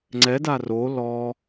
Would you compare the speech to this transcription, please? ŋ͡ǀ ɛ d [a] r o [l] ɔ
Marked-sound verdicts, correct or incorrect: correct, correct

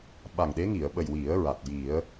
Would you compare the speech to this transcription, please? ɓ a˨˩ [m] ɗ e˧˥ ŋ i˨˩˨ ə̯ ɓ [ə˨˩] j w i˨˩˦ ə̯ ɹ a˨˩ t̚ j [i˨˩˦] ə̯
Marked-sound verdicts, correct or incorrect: incorrect: ŋ, correct, correct

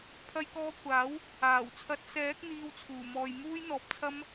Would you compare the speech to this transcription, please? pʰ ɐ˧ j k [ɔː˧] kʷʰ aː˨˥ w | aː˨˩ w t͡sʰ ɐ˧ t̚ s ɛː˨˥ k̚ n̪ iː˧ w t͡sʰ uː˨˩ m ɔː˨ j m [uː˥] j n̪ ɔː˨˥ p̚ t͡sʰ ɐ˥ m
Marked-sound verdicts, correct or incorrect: correct, correct

